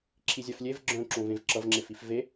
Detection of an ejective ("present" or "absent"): absent